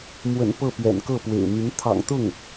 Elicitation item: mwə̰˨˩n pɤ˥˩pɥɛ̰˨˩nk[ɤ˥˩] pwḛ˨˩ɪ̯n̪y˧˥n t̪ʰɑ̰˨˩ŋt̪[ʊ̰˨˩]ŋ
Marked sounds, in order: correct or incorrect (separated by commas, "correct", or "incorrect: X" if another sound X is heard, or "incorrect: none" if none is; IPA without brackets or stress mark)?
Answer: correct, incorrect: ʊ˥˩